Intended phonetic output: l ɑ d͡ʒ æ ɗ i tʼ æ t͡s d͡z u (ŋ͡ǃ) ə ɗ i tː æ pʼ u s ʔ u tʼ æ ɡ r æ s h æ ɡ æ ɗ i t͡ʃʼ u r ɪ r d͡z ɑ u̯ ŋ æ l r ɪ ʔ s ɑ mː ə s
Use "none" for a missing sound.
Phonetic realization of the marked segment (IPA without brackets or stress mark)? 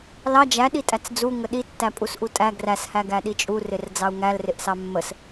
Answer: ŋ